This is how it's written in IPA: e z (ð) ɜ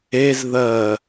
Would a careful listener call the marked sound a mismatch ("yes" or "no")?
no